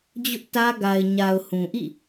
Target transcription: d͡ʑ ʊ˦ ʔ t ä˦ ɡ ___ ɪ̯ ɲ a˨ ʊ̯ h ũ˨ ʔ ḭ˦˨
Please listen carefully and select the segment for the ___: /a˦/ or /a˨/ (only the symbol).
a˨